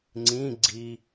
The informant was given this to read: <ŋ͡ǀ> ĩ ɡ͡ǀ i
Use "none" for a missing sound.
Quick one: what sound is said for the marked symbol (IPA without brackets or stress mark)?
ŋ͡ǀ